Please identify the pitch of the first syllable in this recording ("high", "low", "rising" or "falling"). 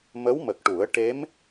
rising